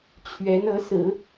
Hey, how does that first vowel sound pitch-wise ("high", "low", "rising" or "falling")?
rising